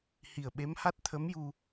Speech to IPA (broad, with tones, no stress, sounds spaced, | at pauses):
h i˨˩ ə̯ ɓ e˧˥ m h a˦˥ t̚ t̪ʰ ə˧˥ m j u˧